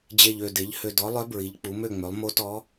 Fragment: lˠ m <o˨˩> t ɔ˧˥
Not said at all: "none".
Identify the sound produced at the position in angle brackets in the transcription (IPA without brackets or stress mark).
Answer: o˧˥